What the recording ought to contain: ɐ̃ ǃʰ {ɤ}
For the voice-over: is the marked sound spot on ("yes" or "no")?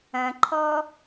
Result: no